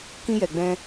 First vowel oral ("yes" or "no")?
no